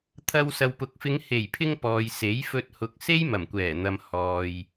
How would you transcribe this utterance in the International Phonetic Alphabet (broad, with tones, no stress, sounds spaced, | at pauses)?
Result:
t̪ʰ ɐ˧ w s ɐ˨ w p ʊ˨ k̚ f ɪ˨˧ ŋ h e˨˩ j pʰ ɪ˧ ŋ p ɔː˨ j s e˨˥ j f ɵ˧ t̚ h ʊ˨ k̚ s e˥ j m ɐ˨˩ m kʷ ɛː˨˩ n̪ ɐ˨ m h ɔː˨ j